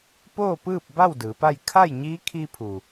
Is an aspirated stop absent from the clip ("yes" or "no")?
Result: no